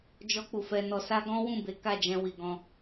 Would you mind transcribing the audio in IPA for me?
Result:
d͡ʒ ɔ˧ k͡p u˨ f ɛ˧ n ɔ˧ s a˦ ɡ ɔ̃˦ w ũ˦˨ b e˨˦ k a˦˨ d͡ʒ ɛ̃˧ w i˨ ɡ ɔ̃˧

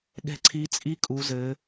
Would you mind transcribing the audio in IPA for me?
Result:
ɠ ɛ̤˦˥ ǀʰ i˦˥ t͡sʼ i˦˥ kʼ u˦˥ z ɘ˦˥

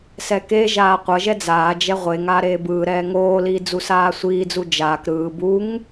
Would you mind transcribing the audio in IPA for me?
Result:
s ɛ k e ʒ aː qʷ ʌ ʒ ɛ d͡z aː d͡ʒ ɛ ʁʷ e ŋ aː ɾ eː b ɯː ɾ ɛː ŋ oː l iː d͡z u s aː sʷ iː d͡z u d͡ʒ aː k ɾ ɯː b u ŋ

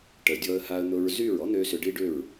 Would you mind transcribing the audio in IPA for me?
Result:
ʈ ə˨ dʲ ɔ˧ ə̯ h a˧ ə̯ n̪ ʊ˧ ɹ z y˦˨ ɹ ɔ˦ n̪ ø˧ s ʏ˨ ɖ i˦ ɖ ʏ˦˨ ɹ

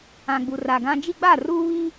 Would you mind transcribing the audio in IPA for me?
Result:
ã˨ ɡ͡b u˨ r a˨ ɡ ã˦ d͡ʒ i˦ ɡ͡b a˦˨ r uː˦ β i˦

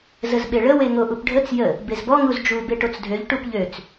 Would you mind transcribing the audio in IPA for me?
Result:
z ə z ɓ e ɭ ə w e ŋ o ʔ u p ɖʱ ə t͡s j ə | b e z b ɔ ŋ u z d͡ʒ u b e ʈ o t͡s dʱ ø ʎ ʈ u p ʎ ø t͡s

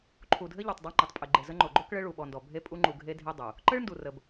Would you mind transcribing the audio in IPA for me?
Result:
ǃʰ u˨ dʱ ɘ˦ ʎ o˨ tˤ dˤ u˦ ŋ͡ǃ e˨ tˤ pʼ ɘ˨ ɡ͡ǃ e˨ z ə˦ ŋ͡ǃ o˨ ɡ͡ǃ o˦ k ɭ ɘ˦ ɭ u˨ ɓ ɔ˨ n d ɔ˨ bʱ e˦ pʼ u˦ ŋ͡ǃ u˨ ɡʱ e˦ dʱ e˦ dˤ u˨ | ǃ ɘ˦ ɭ n d u˨ r ə˨ b

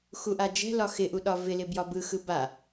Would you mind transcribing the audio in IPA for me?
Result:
x u ʔ a d͡ʒ ɛ̤ l ɒ x ɪ ʔ u ɗ ɒ v ɪ l ɪ b j ɒ b ɯ x ɯ b a

